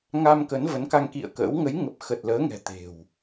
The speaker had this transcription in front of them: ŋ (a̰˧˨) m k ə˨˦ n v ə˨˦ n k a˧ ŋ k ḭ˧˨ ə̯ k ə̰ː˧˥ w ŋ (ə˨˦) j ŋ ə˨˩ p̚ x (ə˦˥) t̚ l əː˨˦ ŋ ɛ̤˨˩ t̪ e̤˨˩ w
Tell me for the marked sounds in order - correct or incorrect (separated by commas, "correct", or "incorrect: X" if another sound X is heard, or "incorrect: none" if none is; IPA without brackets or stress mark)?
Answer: incorrect: a˧, correct, incorrect: ə˨˩